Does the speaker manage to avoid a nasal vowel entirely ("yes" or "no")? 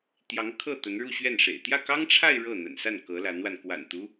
yes